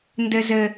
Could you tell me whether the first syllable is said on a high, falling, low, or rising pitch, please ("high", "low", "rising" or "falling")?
low